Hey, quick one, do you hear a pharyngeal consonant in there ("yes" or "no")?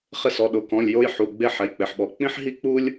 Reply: yes